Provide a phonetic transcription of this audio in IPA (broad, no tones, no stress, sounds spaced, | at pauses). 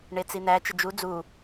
ɳ e t͡s i n̪ æ t͡ʃ ə d͡ʒ u d͡z u